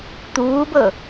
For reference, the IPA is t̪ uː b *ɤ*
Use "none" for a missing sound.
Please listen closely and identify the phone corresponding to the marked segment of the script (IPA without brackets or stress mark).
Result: ɤ